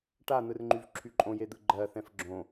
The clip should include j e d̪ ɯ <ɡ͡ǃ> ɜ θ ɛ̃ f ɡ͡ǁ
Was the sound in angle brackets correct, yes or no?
yes